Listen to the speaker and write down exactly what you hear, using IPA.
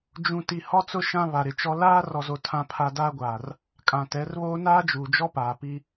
d͡ʒũ˨ti˨ hɔ˦t͡sʊ˦ ʃã˦βa˨ɾɪ˨t͡ʃɔ˦ laː˦ rɔ˨zo˨ tʰã˦pʰa˦ daː˦ɡʷaː˨r | kʼã˨tɛ˨˦rβoː˦ naː˦d͡ʒuː˨d͡ʒɔ˦paː˨ pi˦

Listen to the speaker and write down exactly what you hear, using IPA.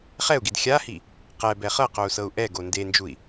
χɛu̯ɡid xʲahi | qɛbɛ χɤqou̯sɤu̯ ʔɛɡo ndend͡ʒui̯

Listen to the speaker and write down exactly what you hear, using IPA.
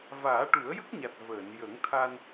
vaː˨˩˦ʈu˨˩˦ə̯jə˦˥k̚ɲa˨˩t̚ vəː˨˩˨n jə˨˩˦ŋt̪ʰa˧n

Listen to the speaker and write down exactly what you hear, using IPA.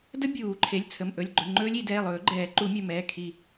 də˦˥bʲuː˨˩˦ǃʰe˩˧˩lʲ t͡sʰə˩˧˩mʔɵ˩˧˩lʲɡ͡ǃɵ˩˧˩ ŋ͡ǃɵː˦˥lʲi˨˩˦ dɛː˩˧˩lˠɵː˨˩˦ɡ͡ǃɛː˨˩˦ ǃu˨˩˦mʲɵ˩˧˩mɛː˩˧˩ kʰi˧˩

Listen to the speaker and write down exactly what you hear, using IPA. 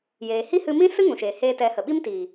jeː˨hi˦ hɨ˧mĩ˦sɨ˦ ŋũ˨ʃeː˨ heː˧tɛ˨˦hə˨ ɓi˦mtiː˨

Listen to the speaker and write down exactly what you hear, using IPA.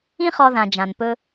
ĩ˦χɔ˨ðã˩ d͡ʒã˩npɵ˨

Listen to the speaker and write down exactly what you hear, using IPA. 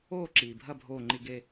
oː˥˩ ǁiː˩bʱɐ˥˩bʱoː˧˩ŋ͡ǃi˧˩ ɡe˧˩

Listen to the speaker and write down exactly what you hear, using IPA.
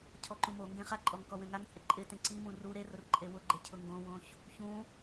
cʰɔǃũmoŋɡẽ χaǃʼɔŋ kɔwẽŋaŋt͡sʼɪ ǃʼɪ tẽǀimũ ru ɾerʊr ǃʼewʊɡ͡ǃe cʰʊŋɡõwõç | çũ

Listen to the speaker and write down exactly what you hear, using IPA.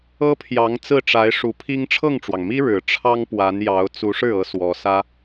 ɤ˥pʰjɑ˧˥ŋ t͡sɹ̩˥˩ʈ͡ʂa˧˥ɪ̯ ʂu˧˥pʰi˥ŋ ʈ͡ʂʰɤ˥˩ŋʈ͡ʂwɑ˩ŋmi˥ ɻɻ̩˨˩ ʈ͡ʂʰɑ˥ŋ pwa˧˥njɑ˧˥ʊ̯ t͡su˧˥ʂɻ̩˥˩ɤ˧˥ swɔ˧˥sä˥

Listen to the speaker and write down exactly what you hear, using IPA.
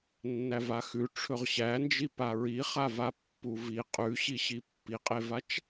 nːævaxʉ ʈ͡ʂʰɵʁɕænd͡ʒi paɹiχava pːuvi qʼʉɕiɕi pːiqʼevat͡ʃ

